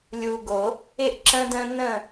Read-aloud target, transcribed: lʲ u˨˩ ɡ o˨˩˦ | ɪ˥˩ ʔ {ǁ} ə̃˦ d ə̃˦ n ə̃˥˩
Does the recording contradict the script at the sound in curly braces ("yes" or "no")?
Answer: no